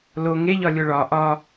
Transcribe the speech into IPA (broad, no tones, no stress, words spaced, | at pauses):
lo ŋeʎɒlʲo ɭɒ ʔɒ